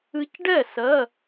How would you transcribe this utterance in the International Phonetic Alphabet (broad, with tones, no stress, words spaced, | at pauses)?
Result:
ɨ˧cɖɛ˥˩ sɜ˧˥˧